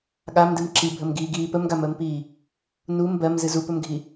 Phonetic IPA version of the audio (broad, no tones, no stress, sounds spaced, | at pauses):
ɠ a m d ɨ m ǁ i bʱ ə m ɡ iː ɡ iː p ə m ɡ a m əː m p iː | n u m b ɜ m z ɨ z u p ɵ m ɡʱ i